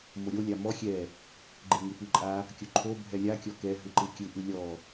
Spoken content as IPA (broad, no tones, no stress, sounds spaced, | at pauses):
m o ɾʲ o lʲ a m ɔ xʲ ɛ | ɡ͡ǃ e ŋ ɯ p ɯ ǃʼ a | kʲ o ǃʰ o bʱ ɛ lʲ a kʲ ɔ k ɛ ɦ ɯ ǃ ɯ kʲ ɯ ʔ ɯ lʲ ɔ